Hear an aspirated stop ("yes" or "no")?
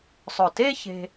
no